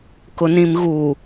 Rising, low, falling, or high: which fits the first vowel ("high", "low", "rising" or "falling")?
low